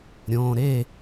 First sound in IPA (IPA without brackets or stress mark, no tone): ɾʲ